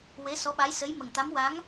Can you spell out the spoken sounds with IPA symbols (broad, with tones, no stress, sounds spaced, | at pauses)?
w e˧˥ s ɔ˧˥ ɓ a˧˥ j s ə˧˥ j m ə˨˩ ŋ t̪ a˧˥ m w a˧˥ ŋ